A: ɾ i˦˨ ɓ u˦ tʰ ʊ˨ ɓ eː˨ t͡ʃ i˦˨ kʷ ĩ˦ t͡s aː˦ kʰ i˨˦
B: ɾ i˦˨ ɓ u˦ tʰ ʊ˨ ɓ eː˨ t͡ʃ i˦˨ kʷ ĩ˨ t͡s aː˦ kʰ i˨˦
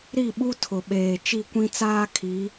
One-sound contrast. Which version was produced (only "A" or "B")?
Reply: A